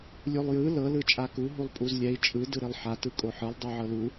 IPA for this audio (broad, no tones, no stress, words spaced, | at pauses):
lʲulˠjɯ lɤ lɯt͡ʃʼaku ɦulˠpʼuzlʲɛi̯ t͡ʃʼɯ dɯɾilˠħa tɯkʼoħɯlˠ dˤuʕɤlu